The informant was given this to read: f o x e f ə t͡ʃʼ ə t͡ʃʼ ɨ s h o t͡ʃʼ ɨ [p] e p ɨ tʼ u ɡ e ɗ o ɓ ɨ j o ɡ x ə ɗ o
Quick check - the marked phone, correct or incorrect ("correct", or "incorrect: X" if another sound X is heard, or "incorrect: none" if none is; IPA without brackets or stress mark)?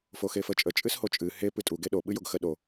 incorrect: h